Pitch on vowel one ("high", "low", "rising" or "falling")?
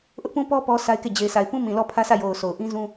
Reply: high